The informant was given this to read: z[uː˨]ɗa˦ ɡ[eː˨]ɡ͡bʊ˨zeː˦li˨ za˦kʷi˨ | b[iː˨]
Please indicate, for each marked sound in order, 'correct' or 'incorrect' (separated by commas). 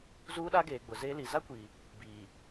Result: incorrect, correct, correct